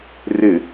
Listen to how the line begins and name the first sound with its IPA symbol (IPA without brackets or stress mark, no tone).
r